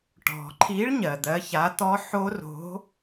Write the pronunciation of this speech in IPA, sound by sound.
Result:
ʈ ɔ̤˩ ǃʰ i˨˥ ɭ ɲ ɜ˩ d̪ ɜ˨˥ ç a˨˥ t̪ ɔ˦˥ ħ o˦˥ r o̤˨˥

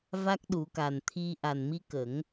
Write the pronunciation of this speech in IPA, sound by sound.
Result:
v a˦˥ k̚ ɗ u˨˩˦ k a˨˩ n t̪ʰ i˧ ʔ a˨˩ n m i˧ k ə˨˩˦ ŋ

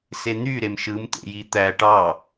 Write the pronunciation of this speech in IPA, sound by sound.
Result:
s e n̪ y ɾ e m ʃ ɯ m t̪ ḛ j i t̪ æ ʈ ɑ

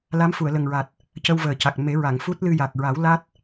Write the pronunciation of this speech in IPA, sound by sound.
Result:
l a˧˥ m f u˨˩˨ ə̯ l ə˨˩ ŋ ɹ a˨˩ t̚ | c ə˧ w v əː˨˩ c a˨˩ k̚ m e˨˩˦ ɹ a˨˩˨ ŋ f u˦˥ t̚ l ɨ˧ j a˨˩ k̚ ɹ a˨˩˦ w l a˦˥ t̚

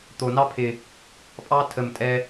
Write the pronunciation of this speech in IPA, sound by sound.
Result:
t̪ o˨˩ n ɑ˦ pʰ ɪ˨˩ | pʼ ɑː˦ tʰ ə˨˩ m tʼ ɛ˦

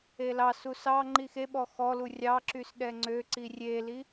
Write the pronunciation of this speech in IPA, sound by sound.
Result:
e l ɑ s u s ɑ ŋ͡ǃ i x e ɓ ɔ x ɔ l u rʲ ɑ ǁ y s ɗ ɛ ŋ͡ǀ ø ǀ i rʲ e l i

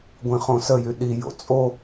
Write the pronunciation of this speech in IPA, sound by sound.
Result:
ɡʷ ĩ χ õ s ə j y ɗ i j o̰ t͡sʼ o

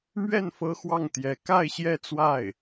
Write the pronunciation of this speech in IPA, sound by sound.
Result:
m ɥ ɛ˥˩ n f ɤ˥ x w ɑ˥˩ ŋ t̪ j ɛ˧˥ k a˥˧ ɪ̯ ɕ j ɛ˥˧ t͡s w a˥˩ ɪ̯

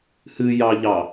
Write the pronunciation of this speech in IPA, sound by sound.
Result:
h ɨ j ɑ ʎ ɑ

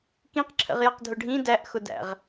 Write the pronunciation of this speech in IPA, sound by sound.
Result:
k ĩ q ǁʰ ə̰ ʁ j ʌ q dʱ ʊ ɖʱ ĩ d æ ʔ x ʊ d æ̰ ʁ

